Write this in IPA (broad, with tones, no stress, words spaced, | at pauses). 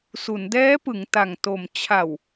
su˩˦ndɛː˦˥pɯ˩˦ŋ ta˨˩ŋto˨˩m t͡ɕʰa˨˩w